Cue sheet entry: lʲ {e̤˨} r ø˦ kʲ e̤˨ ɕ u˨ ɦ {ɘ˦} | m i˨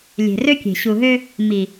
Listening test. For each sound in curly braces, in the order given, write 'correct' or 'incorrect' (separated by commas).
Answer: correct, incorrect